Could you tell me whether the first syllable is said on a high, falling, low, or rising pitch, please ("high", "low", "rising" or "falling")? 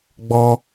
high